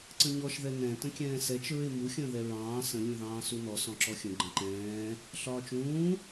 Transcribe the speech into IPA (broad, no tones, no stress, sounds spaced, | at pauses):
ǀ ə̃ ɲ ɔ ʃ ð ɛ n ɛ̃ t ə̃ kʲ ɛ̃ː s ɛ t͡ʃ ɹ ɪ m u xʲ ə̃ː ð ɛ ɹ ɑ̃ː s ə̃ lʲ ũ ð ɑ̃ː s u n ɔ s ɔ̃ ǁ ɔ xʲ ə̃ ɡ͡ǃ ə̃ ǃ ɛ̃ː | ɬ ɒː t͡ʃ ũː